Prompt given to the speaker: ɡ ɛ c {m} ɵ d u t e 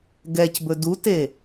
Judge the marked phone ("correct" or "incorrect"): incorrect